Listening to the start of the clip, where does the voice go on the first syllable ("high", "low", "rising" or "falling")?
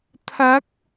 rising